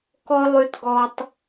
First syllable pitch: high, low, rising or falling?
high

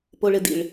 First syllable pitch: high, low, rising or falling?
low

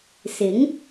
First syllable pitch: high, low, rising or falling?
rising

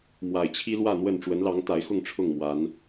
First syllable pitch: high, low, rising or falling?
low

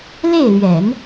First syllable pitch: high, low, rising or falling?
falling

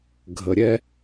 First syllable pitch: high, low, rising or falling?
low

